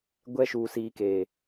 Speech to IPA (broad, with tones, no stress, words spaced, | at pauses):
ɡʷɛ˧ʃu˨ siː˨keː˨